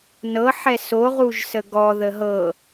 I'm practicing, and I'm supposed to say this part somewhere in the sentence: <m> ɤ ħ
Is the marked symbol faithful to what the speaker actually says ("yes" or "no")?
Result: no